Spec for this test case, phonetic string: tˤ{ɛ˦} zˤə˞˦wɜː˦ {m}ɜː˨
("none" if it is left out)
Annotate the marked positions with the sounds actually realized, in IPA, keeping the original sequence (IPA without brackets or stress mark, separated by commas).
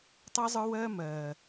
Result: ɛ˦, m